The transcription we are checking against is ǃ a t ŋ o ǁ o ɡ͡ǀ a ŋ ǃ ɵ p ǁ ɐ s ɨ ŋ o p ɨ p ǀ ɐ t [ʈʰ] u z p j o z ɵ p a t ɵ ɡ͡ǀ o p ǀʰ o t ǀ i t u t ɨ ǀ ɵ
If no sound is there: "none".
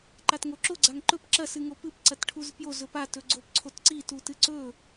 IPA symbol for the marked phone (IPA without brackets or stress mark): ʈʰ